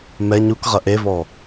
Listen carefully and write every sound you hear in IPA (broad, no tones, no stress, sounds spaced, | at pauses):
m ɛ ɲ u k ʁ ɐ ʔ e v ɔ